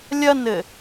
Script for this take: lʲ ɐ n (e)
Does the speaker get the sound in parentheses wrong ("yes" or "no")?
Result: yes